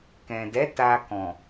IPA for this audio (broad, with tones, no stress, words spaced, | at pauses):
kɛ̃˨dɛ˨˦ ta˧kɔ̃˨